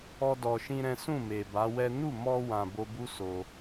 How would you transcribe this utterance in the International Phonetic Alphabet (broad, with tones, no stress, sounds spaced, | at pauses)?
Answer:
ɔ˦ d ɔ˧ ʃ ĩ˦ ɾ ɛ̃˦ s ũ˦˨ m e˨ b a˨˦ w ɛ˦ n u˦˨ m ɔ˧ w ã˨ b o˧ b u˦ s o˧